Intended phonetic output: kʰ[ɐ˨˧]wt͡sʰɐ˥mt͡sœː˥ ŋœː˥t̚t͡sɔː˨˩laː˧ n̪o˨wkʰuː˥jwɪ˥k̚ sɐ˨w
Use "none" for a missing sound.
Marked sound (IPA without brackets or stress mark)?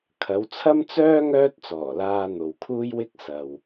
ɐ˨˧